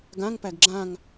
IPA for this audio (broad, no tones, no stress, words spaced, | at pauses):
ɡãŋpæɡ ɡ͡ǁãŋ